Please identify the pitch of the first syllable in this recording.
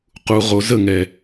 low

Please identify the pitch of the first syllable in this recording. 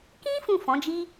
high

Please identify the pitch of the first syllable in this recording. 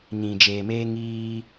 low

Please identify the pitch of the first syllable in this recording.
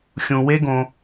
low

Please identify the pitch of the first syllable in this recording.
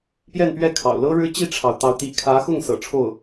falling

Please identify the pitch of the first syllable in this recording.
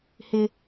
high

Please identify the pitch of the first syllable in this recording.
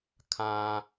high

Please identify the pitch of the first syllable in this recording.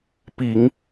low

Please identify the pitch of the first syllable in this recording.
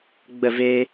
falling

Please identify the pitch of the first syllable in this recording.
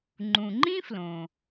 low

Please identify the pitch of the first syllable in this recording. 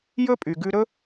high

